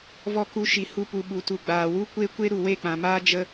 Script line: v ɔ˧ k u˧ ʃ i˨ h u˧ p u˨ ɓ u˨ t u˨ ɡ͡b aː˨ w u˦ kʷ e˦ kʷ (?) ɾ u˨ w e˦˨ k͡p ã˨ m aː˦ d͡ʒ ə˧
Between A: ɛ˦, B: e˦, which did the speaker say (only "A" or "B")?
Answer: B